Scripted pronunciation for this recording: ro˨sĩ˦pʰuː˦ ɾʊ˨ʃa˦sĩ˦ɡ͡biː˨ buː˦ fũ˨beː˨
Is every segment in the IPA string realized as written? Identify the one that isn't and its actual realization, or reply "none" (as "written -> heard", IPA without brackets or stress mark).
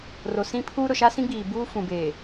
none